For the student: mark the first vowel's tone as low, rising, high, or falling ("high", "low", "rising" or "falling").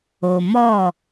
low